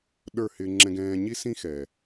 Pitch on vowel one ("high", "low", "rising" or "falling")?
falling